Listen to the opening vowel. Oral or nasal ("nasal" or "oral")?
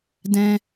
nasal